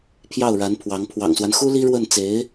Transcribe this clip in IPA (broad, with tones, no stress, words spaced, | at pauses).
pʰjɑ˥˩ʊ̯ɻa˧˥npʰwɑ˧˥ŋ pʰwɑ̰˨˩ŋswa˦nxu˥ li˥ɻwə˥˩nt͡se˧˥ɪ̯